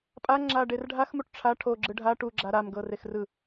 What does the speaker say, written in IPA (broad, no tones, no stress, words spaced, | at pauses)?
pʼaŋ͡ǁa ɖerɖʱaxmuʈ ʈ͡ʂʰa ʈʰoɡ͡ǁɯ ɖʱa ʈuɡ͡ǁa ɾamɡɤ rexrɯ